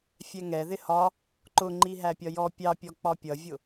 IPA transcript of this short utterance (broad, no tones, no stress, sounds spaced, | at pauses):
fʲ ɛ ŋ ɛ ð ɪ h ɒ | ǃ ʊ ŋ͡ǃ i ɦ æ pʲ ɒ j ɔ pʲ ɑ pʲ ɔ k͡p ɒ pʲ ʌ vʲ ʊ